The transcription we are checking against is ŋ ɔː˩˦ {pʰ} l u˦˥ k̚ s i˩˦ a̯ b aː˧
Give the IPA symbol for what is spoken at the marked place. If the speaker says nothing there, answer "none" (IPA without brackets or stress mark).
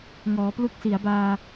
p